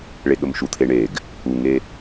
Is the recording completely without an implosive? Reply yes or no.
no